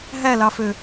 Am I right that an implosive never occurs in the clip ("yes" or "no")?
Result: yes